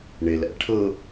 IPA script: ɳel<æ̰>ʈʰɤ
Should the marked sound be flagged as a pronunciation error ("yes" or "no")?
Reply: no